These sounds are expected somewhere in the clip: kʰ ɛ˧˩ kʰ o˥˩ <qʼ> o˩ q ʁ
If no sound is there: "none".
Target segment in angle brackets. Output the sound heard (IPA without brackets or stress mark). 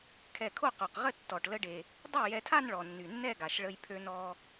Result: q